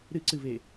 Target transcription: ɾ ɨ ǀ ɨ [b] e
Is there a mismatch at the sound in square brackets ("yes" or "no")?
yes